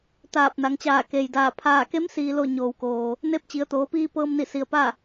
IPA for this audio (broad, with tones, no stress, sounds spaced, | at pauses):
t̪ aː˧˩ p̚ n a˩˧ ŋ t͡ɕ aː˧˩ k e˩ j d aː˧˩ pʰ aː˧˩ k e˧˥ m s iː˩ l o˧˩ ɲ oː˩ w k oː˩ | n e˧˥ p̚ t͡ɕ i˩˧ ə̯ t̪ oː˩˧ p iː˧ p ɤː˧ m n i˧˩ s i˩ ə̯ p a˥˨